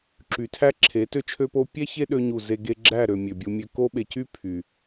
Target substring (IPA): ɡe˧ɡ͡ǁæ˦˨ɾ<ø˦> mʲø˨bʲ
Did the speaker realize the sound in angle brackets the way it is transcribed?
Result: no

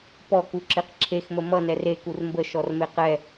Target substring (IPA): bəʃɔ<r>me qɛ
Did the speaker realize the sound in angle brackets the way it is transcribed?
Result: yes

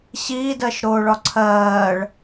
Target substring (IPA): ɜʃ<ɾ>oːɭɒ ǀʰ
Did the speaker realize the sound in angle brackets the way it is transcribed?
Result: yes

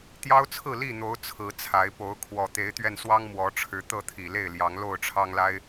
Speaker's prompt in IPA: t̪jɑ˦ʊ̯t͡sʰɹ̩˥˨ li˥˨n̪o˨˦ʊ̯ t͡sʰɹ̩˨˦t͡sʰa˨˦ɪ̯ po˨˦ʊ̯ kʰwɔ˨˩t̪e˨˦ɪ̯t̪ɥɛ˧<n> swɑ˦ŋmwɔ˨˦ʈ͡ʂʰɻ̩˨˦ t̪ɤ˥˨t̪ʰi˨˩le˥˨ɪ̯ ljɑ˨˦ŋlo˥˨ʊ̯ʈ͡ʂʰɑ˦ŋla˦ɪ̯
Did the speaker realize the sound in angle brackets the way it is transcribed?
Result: yes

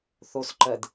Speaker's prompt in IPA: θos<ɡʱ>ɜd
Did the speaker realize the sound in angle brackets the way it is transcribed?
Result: no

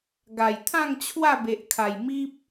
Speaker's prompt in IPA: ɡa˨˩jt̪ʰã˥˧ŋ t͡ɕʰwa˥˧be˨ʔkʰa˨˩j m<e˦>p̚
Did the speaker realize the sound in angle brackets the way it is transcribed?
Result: no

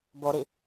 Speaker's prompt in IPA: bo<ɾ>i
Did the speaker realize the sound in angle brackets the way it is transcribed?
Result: yes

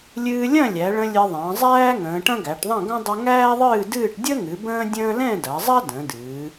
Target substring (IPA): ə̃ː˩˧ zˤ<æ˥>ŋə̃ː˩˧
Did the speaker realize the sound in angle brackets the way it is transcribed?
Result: no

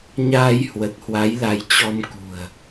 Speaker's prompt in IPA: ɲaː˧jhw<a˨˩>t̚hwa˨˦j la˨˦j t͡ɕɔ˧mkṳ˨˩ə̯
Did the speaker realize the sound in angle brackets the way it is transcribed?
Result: no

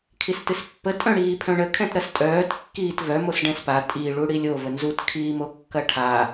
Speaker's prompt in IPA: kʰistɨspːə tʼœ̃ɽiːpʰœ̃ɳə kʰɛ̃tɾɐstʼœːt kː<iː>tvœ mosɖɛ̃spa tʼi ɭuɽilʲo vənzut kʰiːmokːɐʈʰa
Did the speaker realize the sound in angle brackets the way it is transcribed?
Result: yes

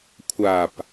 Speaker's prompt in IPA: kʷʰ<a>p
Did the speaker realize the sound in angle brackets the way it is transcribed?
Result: yes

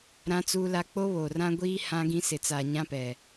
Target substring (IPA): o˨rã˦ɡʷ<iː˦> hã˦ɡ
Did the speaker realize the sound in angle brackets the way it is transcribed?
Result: yes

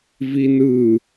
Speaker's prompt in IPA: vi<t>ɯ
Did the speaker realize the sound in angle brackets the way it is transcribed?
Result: no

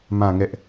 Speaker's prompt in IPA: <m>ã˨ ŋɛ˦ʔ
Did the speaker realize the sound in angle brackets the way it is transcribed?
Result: yes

